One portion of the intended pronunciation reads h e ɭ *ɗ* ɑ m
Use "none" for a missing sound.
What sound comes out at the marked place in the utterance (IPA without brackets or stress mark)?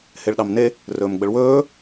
ɗ